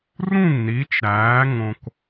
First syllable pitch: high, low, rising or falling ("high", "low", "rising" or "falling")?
falling